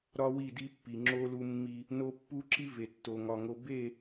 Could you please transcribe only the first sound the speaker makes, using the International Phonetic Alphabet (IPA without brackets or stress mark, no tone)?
ɾ